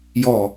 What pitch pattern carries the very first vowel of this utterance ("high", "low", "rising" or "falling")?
low